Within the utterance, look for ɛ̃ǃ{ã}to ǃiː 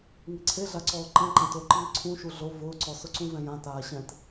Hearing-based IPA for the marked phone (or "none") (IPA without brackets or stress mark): ã